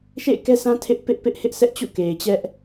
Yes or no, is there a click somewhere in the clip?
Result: no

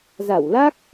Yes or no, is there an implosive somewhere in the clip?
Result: no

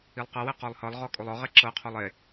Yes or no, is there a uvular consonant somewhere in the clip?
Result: yes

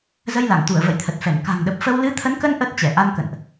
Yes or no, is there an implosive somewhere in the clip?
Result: yes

